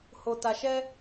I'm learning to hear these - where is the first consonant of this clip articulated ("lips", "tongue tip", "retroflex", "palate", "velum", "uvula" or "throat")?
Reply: throat